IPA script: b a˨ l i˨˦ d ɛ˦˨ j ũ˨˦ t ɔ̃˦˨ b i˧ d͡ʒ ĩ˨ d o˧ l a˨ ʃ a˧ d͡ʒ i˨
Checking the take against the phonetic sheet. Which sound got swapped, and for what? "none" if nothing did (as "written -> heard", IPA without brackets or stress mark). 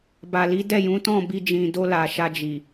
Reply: none